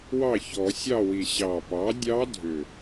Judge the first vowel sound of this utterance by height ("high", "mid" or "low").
low